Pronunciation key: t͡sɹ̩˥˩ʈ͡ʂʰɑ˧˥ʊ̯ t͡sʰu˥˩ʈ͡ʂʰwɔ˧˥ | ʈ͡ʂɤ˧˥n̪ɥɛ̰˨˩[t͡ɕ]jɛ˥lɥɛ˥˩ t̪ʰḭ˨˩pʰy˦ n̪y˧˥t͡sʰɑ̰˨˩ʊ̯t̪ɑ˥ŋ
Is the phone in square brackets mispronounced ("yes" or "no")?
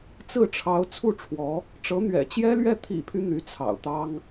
no